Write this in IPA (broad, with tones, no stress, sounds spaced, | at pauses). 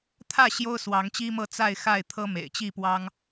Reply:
t̪ʰ ä˥˨ ɕ j o˦ ʊ̯ s w ɑ˨˦ ŋ t͡ɕ i˦ m ɤ˥˨ t͡s a˥˨ ɪ̯ x a˥˨ ɪ̯ t̪ʰ ɤ˦ m ḛ˨˩ ɪ̯ t͡ɕ i˥˨ p w ɑ˦ ŋ